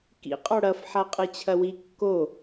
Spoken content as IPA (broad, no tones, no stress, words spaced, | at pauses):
kḭ qʼɔɽɐf ħaqʼɨt͡ɕʰɐwi kːo